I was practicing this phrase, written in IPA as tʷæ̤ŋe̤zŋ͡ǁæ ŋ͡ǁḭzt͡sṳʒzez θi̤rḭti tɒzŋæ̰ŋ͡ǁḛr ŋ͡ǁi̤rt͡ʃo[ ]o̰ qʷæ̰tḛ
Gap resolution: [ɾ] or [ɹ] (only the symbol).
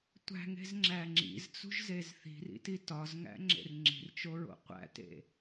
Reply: ɹ